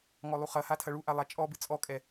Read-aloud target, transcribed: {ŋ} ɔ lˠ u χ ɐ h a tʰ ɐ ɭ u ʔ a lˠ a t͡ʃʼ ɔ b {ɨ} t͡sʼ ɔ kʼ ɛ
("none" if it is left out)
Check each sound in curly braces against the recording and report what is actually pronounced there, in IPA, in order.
ŋ, ɨ

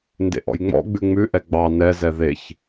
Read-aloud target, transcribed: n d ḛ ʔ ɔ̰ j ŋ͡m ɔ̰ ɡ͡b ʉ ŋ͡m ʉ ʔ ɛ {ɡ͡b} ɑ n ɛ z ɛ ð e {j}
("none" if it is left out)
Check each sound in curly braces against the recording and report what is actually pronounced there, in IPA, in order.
ɡ͡b, ç

